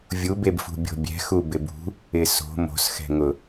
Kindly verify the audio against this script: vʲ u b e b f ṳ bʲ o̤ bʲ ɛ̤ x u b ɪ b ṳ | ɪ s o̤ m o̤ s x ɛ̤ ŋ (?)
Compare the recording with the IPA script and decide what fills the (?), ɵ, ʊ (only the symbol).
ʊ